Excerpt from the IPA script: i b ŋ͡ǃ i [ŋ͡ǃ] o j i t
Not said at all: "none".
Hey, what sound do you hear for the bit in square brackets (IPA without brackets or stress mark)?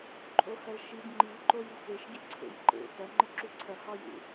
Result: ǃ